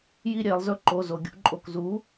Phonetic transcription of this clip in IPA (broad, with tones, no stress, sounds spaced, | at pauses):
j i˦ ɾʲ e˩˧ lˠ z ɵ˦ ǃ o˩˧˩ z o˩ ɡʲ ṵ˩˧ ǃʼ o˩ k z u˩˥